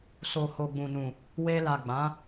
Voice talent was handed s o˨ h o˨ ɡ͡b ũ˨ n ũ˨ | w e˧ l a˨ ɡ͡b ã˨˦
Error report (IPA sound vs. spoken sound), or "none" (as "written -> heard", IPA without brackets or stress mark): none